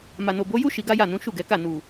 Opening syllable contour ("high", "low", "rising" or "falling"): low